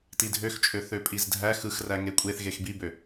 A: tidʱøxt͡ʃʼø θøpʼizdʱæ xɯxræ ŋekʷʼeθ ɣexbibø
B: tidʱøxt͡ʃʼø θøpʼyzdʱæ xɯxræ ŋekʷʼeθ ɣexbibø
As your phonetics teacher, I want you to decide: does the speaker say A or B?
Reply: A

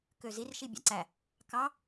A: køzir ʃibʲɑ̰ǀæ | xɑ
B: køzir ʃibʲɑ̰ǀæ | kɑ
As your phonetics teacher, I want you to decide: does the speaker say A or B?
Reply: B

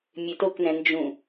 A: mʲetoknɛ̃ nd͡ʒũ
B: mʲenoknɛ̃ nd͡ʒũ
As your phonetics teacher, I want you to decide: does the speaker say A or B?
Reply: A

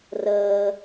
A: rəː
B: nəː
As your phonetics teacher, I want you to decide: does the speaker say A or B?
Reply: A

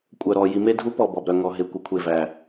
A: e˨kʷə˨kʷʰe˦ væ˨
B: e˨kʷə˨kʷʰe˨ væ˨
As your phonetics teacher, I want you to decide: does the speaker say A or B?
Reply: B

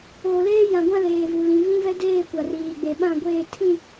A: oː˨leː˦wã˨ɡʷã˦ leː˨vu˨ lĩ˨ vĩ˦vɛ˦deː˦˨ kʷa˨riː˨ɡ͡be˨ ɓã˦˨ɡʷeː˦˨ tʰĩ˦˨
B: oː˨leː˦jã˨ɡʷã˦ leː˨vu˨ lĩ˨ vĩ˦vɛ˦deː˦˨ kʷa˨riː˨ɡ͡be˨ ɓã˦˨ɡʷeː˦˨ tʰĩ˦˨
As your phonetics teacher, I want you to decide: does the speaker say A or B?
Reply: B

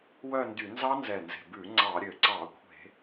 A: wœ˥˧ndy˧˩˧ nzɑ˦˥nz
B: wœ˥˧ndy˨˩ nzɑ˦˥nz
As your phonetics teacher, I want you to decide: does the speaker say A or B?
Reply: A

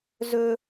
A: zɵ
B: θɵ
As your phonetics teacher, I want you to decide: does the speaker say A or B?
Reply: A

